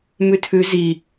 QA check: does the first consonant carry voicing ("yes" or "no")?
yes